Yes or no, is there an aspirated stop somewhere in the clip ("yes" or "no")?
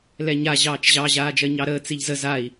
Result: no